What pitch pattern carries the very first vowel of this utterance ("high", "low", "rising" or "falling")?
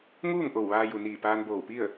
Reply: falling